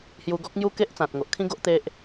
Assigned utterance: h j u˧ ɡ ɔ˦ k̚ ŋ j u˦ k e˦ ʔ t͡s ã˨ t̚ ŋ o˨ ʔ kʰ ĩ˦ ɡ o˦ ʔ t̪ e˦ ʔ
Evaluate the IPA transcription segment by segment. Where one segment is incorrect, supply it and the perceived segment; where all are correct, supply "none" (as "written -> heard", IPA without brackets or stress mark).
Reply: none